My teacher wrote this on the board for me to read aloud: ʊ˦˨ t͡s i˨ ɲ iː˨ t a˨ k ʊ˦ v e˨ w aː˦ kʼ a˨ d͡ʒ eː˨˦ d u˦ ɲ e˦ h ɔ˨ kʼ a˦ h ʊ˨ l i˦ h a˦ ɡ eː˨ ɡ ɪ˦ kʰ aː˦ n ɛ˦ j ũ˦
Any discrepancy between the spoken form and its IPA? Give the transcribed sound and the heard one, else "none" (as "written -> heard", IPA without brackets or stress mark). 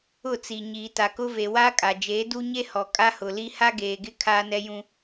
none